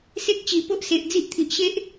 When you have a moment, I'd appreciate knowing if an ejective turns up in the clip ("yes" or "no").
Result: no